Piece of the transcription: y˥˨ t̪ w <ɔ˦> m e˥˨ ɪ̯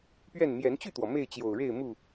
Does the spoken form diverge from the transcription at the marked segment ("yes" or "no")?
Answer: yes